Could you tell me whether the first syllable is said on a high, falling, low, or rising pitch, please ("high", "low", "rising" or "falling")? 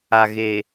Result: low